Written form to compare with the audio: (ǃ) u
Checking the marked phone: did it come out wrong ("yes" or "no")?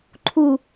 yes